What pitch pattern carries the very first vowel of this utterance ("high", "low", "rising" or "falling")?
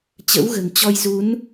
rising